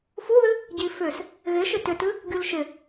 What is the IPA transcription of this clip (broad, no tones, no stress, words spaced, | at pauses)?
fuðɨ | ɟifʏs | ɣɪ ʃɪtʏtɨ | ɡʲulʃɪ